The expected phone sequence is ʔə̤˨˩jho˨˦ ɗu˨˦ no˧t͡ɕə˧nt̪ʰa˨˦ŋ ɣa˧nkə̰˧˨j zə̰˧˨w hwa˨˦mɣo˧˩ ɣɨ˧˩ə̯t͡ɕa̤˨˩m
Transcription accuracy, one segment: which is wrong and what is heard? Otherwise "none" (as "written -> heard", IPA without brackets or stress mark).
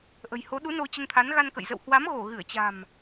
ŋ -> n